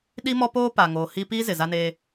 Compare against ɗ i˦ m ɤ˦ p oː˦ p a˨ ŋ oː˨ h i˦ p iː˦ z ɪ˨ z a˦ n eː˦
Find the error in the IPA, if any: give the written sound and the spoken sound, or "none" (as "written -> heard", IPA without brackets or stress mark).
ɤ˦ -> ɔ˦